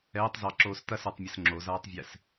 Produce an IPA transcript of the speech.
ɛː tˤ z ɑ ǁ oː s t ɐ s ə˞ tˤ mʲ ə s ŋ͡ǁ o z aː tˤ vʲ ɛ s

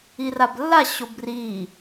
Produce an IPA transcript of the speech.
i r a b lː a ɕ o b r i

